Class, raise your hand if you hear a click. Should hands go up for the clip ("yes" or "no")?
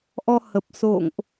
no